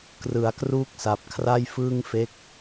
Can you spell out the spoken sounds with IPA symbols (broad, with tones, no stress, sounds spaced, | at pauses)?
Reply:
k r ɯ˩˦ a̯ k r uː˥˩ k̚ s a˨˩ p̚ kʰ r a˥˩ j f ɯː˥˩ ŋ f e˦˥ k̚